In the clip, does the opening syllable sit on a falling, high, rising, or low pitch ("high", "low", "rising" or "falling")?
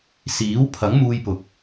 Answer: rising